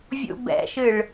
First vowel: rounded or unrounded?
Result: rounded